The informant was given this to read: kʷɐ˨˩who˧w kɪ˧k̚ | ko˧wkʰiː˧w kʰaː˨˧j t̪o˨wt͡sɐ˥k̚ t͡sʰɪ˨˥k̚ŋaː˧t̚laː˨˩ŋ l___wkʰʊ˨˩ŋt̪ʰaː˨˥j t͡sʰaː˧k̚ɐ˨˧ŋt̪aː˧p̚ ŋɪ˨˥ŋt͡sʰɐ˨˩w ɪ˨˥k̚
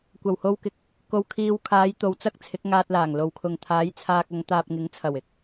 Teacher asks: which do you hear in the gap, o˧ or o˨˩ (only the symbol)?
o˨˩